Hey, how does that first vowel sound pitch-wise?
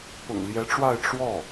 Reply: low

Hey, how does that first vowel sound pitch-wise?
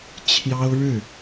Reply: high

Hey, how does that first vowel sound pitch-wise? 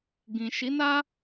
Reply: low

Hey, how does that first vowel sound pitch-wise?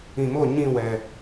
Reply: low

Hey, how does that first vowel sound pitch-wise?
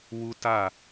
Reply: high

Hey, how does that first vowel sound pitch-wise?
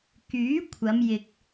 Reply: rising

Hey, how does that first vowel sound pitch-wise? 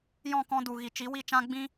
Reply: falling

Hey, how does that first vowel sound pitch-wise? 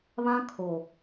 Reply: high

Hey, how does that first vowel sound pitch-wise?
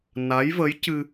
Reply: rising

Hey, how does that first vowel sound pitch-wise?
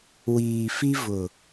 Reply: low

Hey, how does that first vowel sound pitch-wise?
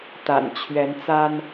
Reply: low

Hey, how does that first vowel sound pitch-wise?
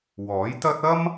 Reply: rising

